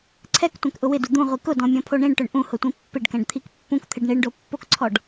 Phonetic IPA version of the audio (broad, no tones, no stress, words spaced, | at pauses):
ǀʰɛktʷɛ̃kʔʊ wɪdu d̪ũʁʷi kʊdɔ̃mʲɔ̃pʰo ɳĩɳʈʊɳ ʔũhʊtʷĩ pːɪɖkɛ̃ɖt̪ʰik pːũkt̪ʰɪɖ ɳiɳɖopːokǀʰɔɖ